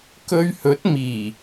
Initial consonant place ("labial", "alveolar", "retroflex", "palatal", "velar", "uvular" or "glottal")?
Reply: velar